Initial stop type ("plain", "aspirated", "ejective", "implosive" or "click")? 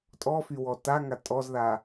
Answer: ejective